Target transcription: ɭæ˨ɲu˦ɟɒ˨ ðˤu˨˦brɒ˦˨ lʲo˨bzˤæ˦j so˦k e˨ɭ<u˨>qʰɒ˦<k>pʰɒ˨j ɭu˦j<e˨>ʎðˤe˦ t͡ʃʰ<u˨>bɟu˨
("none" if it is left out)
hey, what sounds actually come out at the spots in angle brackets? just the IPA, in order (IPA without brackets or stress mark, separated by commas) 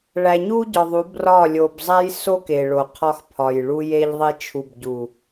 o˨, x, e˦, u˨